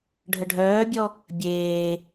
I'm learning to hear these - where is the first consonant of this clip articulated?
retroflex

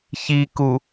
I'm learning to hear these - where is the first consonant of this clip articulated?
palate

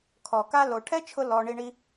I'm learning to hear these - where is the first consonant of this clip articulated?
velum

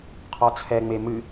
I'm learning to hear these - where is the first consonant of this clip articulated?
uvula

